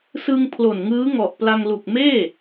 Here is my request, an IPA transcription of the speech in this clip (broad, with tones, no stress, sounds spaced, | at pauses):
s ɯ˧ ŋ pʰ l o˨˩ n ŋ ɯː˦˥ ŋ ɔ˨˩ ʔ p l a˧ ŋ l u˨˩ k̚ m eː˥˩